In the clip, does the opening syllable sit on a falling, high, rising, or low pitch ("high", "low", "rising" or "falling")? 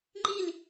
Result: falling